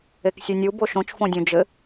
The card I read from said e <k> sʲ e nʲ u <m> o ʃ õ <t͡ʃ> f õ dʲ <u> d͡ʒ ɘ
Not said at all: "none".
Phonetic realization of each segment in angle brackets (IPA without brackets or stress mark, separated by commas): k, b, t͡ʃ, ũ